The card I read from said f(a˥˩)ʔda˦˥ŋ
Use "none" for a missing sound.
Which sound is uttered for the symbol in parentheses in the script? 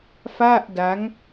a˥˩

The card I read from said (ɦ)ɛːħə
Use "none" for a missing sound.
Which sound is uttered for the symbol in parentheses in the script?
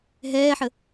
ɦ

